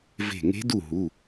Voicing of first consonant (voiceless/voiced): voiced